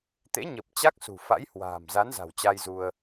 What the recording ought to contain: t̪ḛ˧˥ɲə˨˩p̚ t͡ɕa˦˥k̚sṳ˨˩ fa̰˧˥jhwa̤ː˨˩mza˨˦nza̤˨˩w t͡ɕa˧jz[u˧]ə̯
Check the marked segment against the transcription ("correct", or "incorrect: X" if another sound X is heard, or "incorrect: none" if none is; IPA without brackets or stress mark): correct